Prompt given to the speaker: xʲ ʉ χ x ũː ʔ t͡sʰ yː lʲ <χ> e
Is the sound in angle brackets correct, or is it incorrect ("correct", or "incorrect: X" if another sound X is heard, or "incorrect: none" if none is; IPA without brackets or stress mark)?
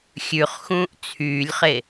correct